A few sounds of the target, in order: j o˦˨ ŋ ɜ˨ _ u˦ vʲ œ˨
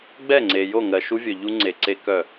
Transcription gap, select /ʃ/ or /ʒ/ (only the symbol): ʃ